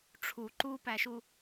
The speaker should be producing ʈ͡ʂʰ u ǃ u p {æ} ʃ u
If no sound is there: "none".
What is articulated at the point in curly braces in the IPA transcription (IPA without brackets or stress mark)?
æ